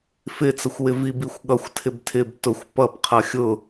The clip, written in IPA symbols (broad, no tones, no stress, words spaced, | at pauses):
fɪt͡səxʷwɪ vibixʷɠʌxʷ tʰɪbtʰɪb tʊxʷ pʌb qʰʌxʲʊ